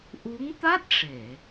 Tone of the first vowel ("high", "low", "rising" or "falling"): rising